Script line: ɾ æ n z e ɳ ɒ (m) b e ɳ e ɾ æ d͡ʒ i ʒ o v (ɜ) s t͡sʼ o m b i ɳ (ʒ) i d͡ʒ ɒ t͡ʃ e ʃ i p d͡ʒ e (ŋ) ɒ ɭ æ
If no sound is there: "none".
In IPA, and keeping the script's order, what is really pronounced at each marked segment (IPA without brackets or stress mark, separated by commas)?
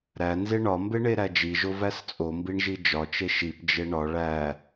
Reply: m, æ, ʒ, ɳ